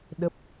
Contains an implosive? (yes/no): yes